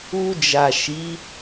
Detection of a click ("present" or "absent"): absent